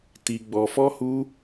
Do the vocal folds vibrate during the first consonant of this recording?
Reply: no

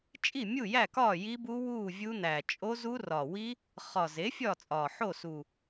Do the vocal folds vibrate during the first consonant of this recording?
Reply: no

